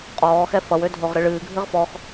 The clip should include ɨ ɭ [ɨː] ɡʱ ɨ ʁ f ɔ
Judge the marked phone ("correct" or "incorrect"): correct